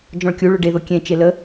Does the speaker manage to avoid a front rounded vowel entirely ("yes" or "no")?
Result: yes